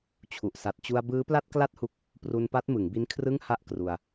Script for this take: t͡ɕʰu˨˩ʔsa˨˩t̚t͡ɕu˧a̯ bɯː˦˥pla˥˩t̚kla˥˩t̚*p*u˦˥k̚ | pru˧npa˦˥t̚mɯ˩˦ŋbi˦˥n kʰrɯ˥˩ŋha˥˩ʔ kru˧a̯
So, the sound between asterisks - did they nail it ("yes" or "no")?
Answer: no